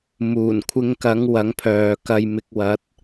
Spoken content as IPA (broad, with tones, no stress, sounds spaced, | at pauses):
m uː˨˩ n kʷʰ ɪ˧ ŋ k ɐ˨˥ ŋ w ɐ˨˥ ŋ pʰ œː˨ k ɐ˧ j m ɪ˧ k̚ w ɐ˨˥ t̚